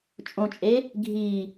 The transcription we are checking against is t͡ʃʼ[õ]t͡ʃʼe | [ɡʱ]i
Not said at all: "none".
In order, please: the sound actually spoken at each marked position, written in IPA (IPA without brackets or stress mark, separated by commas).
õ, ɡʱ